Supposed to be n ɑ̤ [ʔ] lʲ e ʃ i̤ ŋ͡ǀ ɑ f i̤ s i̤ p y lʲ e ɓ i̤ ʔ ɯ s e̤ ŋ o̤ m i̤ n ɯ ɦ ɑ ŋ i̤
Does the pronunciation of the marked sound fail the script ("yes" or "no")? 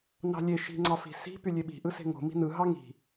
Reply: yes